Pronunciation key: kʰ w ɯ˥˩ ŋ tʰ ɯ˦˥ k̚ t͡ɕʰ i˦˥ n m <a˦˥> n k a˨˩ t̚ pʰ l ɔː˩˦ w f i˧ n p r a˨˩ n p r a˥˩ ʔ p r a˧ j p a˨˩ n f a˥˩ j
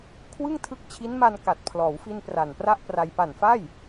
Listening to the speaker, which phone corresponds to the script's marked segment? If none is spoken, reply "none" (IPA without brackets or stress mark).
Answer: a˧